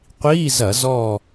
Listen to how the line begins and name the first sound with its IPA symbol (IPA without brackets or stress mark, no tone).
qʷ